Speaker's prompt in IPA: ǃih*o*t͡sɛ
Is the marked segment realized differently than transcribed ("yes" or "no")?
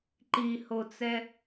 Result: no